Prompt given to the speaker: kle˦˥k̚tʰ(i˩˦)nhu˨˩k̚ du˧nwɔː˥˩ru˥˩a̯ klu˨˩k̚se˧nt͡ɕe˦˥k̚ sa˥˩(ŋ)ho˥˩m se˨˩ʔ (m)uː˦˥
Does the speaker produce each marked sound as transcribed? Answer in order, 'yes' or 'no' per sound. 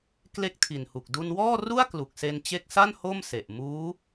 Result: no, no, yes

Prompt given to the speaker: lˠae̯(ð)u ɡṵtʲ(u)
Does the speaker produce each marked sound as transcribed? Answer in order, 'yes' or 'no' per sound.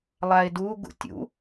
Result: no, no

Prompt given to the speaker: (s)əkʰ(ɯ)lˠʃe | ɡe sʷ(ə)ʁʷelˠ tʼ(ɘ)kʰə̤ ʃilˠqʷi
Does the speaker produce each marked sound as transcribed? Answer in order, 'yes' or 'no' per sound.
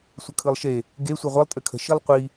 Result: no, yes, no, yes

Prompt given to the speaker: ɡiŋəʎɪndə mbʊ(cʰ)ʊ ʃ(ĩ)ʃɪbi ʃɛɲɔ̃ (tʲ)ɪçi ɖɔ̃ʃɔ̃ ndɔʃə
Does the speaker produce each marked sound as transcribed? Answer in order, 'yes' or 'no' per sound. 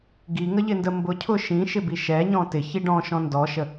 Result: yes, yes, no

